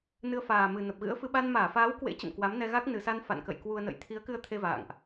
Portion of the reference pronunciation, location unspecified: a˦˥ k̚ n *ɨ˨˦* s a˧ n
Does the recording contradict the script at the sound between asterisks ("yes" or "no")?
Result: yes